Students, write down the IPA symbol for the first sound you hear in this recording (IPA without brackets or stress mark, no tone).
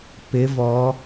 p